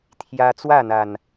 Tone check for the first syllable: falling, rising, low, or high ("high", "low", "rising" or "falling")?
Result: high